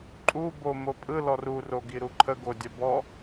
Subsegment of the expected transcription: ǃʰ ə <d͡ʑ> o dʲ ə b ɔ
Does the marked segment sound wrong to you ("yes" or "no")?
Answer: yes